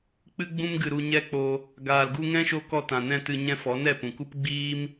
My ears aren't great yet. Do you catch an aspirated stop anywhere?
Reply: no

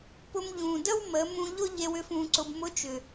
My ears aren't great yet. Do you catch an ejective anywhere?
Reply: no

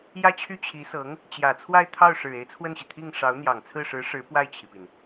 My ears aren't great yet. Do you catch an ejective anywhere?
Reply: no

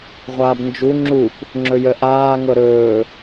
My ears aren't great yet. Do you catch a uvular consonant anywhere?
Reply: yes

